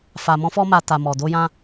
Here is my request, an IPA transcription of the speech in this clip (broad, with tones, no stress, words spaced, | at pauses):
fa˨mɔ̃˧fɔ˧ma˨ ta˨ mɔ˨ do˧jã˧